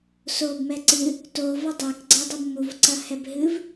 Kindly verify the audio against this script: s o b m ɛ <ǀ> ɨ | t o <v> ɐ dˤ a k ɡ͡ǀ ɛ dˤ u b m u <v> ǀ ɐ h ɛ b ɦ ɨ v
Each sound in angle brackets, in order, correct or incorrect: correct, correct, correct

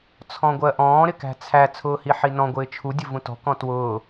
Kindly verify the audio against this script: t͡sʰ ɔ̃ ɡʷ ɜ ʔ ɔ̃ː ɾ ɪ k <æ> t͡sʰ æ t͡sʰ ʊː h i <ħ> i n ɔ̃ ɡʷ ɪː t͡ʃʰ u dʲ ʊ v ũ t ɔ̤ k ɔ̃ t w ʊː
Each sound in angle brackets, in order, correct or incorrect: incorrect, correct

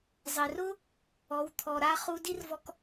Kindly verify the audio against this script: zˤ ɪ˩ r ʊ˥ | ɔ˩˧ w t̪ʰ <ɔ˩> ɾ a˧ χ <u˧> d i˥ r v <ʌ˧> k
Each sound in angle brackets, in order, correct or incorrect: correct, correct, incorrect

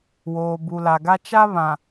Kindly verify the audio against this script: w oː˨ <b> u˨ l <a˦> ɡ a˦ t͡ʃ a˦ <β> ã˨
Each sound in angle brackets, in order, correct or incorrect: correct, incorrect, correct

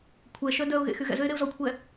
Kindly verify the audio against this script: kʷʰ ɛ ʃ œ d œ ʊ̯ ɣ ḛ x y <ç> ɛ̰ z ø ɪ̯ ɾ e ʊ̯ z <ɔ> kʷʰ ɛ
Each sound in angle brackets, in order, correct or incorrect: incorrect, correct

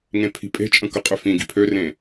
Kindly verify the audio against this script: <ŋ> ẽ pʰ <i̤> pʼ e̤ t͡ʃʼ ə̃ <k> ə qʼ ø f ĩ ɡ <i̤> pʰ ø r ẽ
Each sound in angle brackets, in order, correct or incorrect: correct, correct, correct, correct

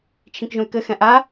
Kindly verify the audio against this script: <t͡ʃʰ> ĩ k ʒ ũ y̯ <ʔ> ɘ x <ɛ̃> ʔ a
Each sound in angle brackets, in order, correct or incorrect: correct, incorrect, correct

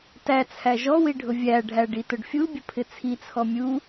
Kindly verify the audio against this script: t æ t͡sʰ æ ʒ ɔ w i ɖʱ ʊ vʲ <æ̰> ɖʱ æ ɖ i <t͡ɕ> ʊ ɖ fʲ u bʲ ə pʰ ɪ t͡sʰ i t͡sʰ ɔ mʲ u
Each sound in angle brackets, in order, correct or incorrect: incorrect, incorrect

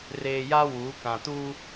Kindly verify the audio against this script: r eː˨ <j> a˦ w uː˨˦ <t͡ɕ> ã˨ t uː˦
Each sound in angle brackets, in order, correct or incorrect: correct, incorrect

